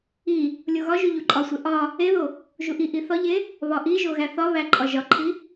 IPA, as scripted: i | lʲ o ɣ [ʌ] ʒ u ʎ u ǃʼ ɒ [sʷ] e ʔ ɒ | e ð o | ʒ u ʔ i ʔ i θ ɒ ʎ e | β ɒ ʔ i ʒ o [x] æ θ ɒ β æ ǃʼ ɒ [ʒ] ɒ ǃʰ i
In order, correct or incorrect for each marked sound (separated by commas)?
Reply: incorrect, correct, incorrect, correct